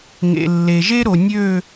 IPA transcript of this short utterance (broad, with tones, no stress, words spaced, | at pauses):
ŋḛ˨lːe˨ʒe˦ɾo˨ nʲø˦˨